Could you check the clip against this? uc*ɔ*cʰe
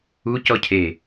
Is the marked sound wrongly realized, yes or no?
no